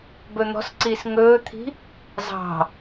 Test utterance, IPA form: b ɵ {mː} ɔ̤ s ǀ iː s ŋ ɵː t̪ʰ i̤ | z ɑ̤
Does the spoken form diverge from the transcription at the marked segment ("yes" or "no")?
yes